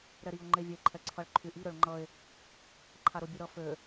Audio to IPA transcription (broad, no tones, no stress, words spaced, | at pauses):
ɾɛɾio̯ ŋ͡ǃevʲe ǃʰɛǀʰʌɭǃʰyʔi ɾøɭŋ͡ǃʌe̯ | ǃʰaɾobʲuɾʌ fø